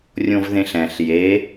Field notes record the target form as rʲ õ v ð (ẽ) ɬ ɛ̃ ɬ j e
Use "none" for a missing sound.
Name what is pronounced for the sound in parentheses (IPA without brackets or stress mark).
ẽ